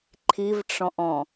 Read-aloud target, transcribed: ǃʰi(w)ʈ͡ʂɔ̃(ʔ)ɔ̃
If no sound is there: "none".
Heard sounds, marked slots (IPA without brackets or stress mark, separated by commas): v, ʔ